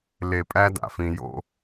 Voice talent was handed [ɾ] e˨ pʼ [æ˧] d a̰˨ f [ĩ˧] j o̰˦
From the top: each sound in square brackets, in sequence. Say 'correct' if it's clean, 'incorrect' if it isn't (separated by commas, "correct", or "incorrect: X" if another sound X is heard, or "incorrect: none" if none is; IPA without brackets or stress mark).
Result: incorrect: l, correct, correct